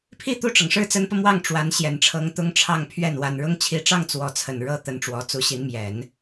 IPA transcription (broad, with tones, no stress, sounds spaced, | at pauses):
pʰ i˥˧ t̪ u˥˩ ʈ͡ʂ ɤ˩ ŋ ʂ ɻ̩˥˩ t͡s ə˧˥ n p ɤ˧ m w ɑ˥˩ ŋ ʈ͡ʂ w a˧˥ n ɕ j ɛ˨˩ n ʈ͡ʂʰ ɤ˧˥ ŋ t̪ ʊ˥ ŋ ʈ͡ʂʰ ɑ˥˧ ŋ pʰ ɥ ɛ˥˩ n w a˨˩ n ɻ ʊ˥ ŋ t͡ɕʰ i˧˥ ʈ͡ʂ ɑ˥˩ ŋ t͡s w ɔ˧˥ t͡sʰ ə˨˩ n ɻ ɤ˥ t̪ ə˧˥ n ʈ͡ʂ w ɔ˧˥ t͡s u˧˥ ɕ i˧˥ n m j ɛ˨˩˦ n